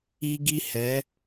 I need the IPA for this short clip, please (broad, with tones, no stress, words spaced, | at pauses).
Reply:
iː˦ɡi˦ hɛ˨˦